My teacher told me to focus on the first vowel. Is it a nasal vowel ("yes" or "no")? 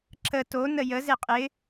no